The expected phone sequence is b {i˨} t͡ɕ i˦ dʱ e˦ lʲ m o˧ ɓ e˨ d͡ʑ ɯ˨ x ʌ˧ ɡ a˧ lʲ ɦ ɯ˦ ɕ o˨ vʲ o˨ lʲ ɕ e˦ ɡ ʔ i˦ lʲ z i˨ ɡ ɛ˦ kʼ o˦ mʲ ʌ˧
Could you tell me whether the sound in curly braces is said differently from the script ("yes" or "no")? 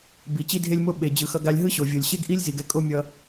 no